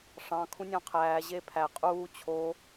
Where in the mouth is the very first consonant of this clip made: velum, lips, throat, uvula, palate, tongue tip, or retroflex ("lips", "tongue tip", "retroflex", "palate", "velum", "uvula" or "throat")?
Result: retroflex